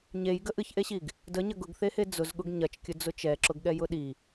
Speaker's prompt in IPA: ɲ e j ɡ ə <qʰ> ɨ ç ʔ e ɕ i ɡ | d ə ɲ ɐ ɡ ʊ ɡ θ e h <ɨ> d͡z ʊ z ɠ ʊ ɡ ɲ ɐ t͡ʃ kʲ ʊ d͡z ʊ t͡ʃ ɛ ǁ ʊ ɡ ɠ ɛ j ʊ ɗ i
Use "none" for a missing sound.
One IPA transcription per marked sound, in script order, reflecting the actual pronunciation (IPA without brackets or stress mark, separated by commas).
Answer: ʔ, e